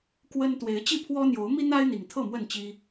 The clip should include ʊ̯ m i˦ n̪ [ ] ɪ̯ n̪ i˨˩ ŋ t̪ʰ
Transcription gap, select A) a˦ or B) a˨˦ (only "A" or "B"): A